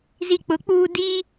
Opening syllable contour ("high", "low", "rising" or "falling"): low